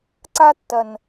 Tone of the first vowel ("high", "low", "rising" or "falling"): high